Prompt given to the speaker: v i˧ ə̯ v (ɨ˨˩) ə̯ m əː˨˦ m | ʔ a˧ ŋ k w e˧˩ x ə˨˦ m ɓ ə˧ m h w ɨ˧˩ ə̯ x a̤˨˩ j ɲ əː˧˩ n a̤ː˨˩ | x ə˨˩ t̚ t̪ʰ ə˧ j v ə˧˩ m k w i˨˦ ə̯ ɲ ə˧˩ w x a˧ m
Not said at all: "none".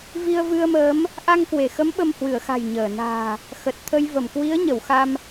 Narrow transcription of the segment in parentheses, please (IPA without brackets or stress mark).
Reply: ɨ˧